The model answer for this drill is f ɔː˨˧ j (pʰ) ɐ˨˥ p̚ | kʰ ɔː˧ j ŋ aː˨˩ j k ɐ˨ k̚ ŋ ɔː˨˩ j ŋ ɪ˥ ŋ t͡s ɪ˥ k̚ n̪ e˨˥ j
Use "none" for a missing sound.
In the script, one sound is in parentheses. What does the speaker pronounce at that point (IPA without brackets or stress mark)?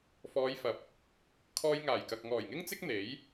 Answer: f